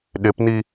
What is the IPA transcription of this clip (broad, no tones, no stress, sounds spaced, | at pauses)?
ɗ ɪ p n i